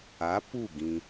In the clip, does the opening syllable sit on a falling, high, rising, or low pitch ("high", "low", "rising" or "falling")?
rising